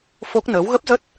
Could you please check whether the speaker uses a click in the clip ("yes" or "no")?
no